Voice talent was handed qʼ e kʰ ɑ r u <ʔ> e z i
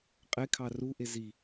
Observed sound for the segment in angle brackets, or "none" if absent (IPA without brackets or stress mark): ʔ